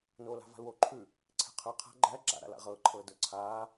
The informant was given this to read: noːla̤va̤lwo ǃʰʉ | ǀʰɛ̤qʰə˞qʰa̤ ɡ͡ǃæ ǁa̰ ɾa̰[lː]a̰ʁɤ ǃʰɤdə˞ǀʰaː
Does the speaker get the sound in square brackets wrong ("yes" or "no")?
yes